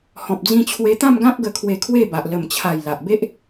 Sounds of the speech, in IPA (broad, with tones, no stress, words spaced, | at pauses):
hɔ̃˨p̚d͡zĩ˧t͡ɕʰwe˧ t̪ã˥˧mɡã˦p̚ɡə˧ kʰwe˧kʰwe˥˧ba˨ʔ lə˨˩mt͡ɕʰa˨˩j la˨ʔbe˦ʔ